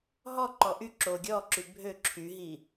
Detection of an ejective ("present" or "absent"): absent